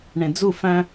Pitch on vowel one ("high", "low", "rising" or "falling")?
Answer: low